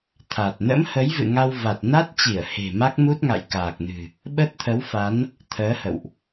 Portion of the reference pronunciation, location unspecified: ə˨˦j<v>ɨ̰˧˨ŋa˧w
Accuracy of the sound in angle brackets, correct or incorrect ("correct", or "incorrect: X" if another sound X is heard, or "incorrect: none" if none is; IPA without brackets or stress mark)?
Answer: correct